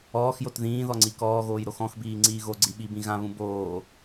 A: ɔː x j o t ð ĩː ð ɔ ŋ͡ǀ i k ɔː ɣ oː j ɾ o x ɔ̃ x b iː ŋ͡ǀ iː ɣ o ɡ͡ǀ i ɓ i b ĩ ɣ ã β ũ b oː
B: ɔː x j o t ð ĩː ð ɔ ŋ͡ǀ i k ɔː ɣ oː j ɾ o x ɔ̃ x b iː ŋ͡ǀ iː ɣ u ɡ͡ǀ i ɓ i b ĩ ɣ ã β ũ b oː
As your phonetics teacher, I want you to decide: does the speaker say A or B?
A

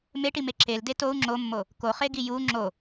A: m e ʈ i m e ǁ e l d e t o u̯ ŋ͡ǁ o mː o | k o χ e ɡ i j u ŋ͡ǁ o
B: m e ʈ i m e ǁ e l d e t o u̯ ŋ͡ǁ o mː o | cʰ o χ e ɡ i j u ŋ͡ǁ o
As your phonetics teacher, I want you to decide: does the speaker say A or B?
A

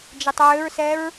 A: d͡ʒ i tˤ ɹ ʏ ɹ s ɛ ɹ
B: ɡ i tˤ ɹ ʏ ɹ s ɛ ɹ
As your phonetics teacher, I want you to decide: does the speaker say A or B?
A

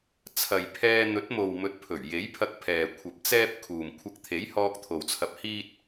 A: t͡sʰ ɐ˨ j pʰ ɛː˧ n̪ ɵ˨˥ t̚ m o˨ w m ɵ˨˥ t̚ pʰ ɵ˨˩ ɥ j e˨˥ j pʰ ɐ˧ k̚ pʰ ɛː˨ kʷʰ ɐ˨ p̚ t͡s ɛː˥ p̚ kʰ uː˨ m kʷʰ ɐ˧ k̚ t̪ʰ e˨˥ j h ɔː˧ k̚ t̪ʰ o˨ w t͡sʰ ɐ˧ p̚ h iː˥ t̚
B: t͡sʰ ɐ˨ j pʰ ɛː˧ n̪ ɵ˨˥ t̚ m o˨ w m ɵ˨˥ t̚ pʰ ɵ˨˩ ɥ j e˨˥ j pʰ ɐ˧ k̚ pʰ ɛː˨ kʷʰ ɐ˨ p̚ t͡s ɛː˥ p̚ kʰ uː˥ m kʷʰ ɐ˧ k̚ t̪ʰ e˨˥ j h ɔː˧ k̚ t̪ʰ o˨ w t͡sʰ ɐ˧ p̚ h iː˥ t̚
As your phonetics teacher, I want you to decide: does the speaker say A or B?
A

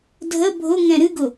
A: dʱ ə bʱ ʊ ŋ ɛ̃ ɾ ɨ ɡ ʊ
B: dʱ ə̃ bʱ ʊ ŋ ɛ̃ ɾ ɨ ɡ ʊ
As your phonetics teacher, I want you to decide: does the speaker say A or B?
A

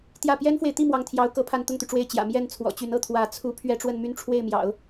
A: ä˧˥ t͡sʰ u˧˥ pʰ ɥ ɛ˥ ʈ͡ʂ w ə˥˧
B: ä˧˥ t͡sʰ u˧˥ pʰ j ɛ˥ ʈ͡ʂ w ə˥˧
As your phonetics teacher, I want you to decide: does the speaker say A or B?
A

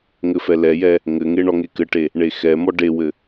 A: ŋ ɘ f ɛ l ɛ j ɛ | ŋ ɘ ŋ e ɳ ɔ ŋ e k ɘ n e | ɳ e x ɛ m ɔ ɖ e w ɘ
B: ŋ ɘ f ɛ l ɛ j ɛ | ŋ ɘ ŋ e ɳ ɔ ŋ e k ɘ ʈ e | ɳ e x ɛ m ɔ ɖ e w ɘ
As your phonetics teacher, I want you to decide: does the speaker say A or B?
B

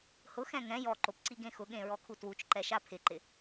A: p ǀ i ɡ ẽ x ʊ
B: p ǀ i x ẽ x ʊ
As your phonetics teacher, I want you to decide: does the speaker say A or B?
A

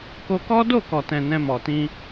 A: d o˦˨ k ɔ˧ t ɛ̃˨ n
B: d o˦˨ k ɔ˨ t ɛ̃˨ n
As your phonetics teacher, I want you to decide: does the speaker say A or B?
B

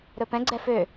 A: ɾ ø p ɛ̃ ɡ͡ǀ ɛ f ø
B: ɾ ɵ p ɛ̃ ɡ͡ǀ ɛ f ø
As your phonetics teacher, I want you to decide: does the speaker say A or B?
B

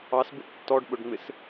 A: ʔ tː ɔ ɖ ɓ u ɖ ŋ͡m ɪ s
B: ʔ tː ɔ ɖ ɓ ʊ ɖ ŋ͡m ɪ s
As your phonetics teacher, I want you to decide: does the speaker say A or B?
B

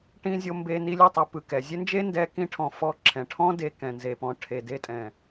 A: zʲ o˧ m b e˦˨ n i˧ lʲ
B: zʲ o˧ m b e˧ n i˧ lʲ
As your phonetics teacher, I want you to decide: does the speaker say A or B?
B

